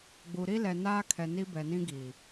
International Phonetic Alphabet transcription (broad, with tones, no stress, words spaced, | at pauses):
ɡ͡bu˨ɾi˦ lɛ˨naː˦kʰɛ˨ ni˦bɛ˨nĩ˦ ɡi˨